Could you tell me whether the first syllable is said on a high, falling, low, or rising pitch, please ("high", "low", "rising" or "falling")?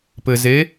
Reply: low